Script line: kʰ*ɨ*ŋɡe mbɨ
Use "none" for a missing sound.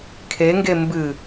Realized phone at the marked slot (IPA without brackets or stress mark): e